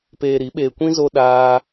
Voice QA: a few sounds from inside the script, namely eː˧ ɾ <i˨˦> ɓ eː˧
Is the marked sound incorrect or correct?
correct